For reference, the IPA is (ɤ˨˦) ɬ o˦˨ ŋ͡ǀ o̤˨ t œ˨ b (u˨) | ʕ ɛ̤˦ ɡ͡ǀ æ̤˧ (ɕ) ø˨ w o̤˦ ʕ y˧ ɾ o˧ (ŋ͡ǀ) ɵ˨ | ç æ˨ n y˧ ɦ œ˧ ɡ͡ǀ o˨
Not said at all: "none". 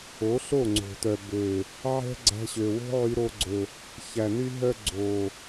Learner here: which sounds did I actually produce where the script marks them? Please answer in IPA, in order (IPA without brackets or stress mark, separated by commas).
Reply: o˨˦, ø˨, ɕ, ɡ͡ǀ